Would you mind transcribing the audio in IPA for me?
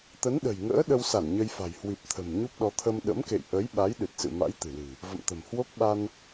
t̪ ə˨˦ n ɗ ə̤˨˩ j ŋ ə̰ː˧˥ ɗ ə˧ w s a˧˩ n ɲ ə˧ j f a̤˨˩ j h w i˨˩ p̚ t̪ʰ ə̤˨˩ m ɲ u˦˥ p̚ ɗ ɔ˨˦ t̪ʰ ə˧ m ɗ ə̰˧˥ m k ḛ˧˨ j ʔ ə˨˦ j ɓ a˨˦ j ɗ ɨ˨˩ t̚ s ɨ̰˧˨ m a̰˧˥ j t̪ ɨ̤˨˩ l ɨ̤˨˩ | v ə̰˧˨ m t̪ ə̤˨˩ m h w o˦˥ k̚ ɓ a˧ n

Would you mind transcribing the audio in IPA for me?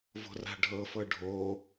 v o̤ r a̤ ɖʱ ɤ f ɤ ɖʱ o

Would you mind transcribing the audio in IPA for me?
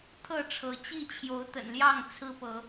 t̪ʰ ɤ˥˨ ʈ͡ʂʰ ɤ˨˦ t͡ɕ i˥˨ t͡ɕʰ j o˨˦ ʊ̯ t̪ ə̰˨˩ n l j ɑ˥˨ ŋ t͡sʰ ɹ̩˦ p ɤ˨˦

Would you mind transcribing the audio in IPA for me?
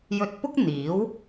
j ɵ˧ t̚ p ʊ˥ k̚ n̪ iː˨˥ w

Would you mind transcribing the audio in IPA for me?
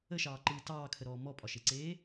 ə ʃ ɑː ǃ ɯː t ɑː kʰ ə ɾ ɔː m ɔ pʼ ɒ ʃ e ǀ eː

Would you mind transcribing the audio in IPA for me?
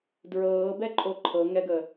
d ɹ ɤː b ɛ ǃʼ o ǃʰ ɤ ŋ ɛ ɡ ə

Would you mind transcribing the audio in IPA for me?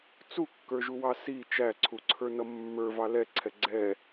t͡s u kː ə˞ ʒ u w ɑ s i t͡ʃ æ ǀʰ u ǀʰ ə˞ n ʌ mː ə˞ v ɑ l ɛ ǀʰ ɛ ɡ͡ǀ ɛ

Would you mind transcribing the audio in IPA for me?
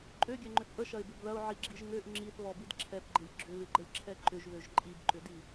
ǃʼ ø ɡʲ ɛ ŋ͡ǃ ʏ θ ʔ ə ʃ ɐ ɪ̯ b ɪ b ð ɐ ʊ̯ ʕ i ɡ͡ǁ i ʒ ŋ ø ʔ ŋ͡ǁ i θ β ɔ b i d ǁʰ ɛ p ɡ͡ǃ ɪ lʲ ɡ͡ǁ ʏ β ɪ ɡ͡ǃ ə lʲ ǁʰ ɛ ǃ ʏ ʒ β ø ʒ ǃʼ i b ǃ ʏ d i

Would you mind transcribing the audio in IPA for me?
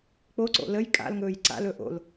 k͡p o ǀ o̰ l ə j kʼ a̰ l ŋ ɵː j ǀ a̰ l ɵ ʔ o̰ l

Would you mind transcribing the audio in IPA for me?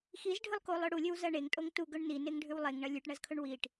x i z ɖʱ ɨ lˠ k o lˠ ɵ ɽ u lʲ ɵ w z ɐ ɳ e ŋ tʼ o ŋ t u ɡ ɵ ɳ n i n e ŋ ɖʱ ʉ w lˠ e ŋ ɳ ɐ lʲ ʉ ʈ ɳ ɐ z kʰ ɵ ɳ w i ʈ

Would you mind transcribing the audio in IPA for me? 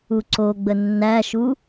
u ǀ o ɡ͡b ə nː æ ʃ u

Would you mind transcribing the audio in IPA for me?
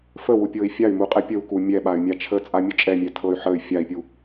f ə w u pʲ ɤ i̯ fʲ a y̯ m u qʼ ɛ pʲ ə u̯ k u mʲ ɛ ɓ a y̯ mʲ a t͡ʃʰ ə t͡sʼ a mʲ ə t͡ʃʼ ɛ mʲ ɛ tʰ ɤ y̯ ħ ə y̯ fʲ a i̯ pʲ u

